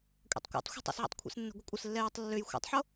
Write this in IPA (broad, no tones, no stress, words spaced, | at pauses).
kʷʼɛ̰tˤkʷɛ̰tˤxʷɛ̤ tˤə̰sʕa̰tˤkʷʰɛ̰snːə̤ ɡʷəkʷʼəslːɛjətˤ lːøj xʷɛ̰tˤħo